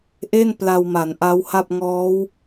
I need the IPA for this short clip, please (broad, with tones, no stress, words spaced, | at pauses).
ʔe˥˩n pla˧wma˩˦nʔa˦˥wha˥˩p̚ ŋɔː˦˥w